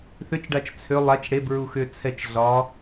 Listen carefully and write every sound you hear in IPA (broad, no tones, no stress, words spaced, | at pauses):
θʏt͡ʃɖat͡ʃ t͡sʰʏ lˠat͡ʃ ɽebɹu xʏ t͡sʰɛt͡ʃ ɮɒ